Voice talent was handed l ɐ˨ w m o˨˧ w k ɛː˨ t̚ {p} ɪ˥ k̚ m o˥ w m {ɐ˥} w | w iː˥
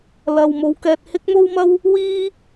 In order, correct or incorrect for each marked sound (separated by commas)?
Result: incorrect, correct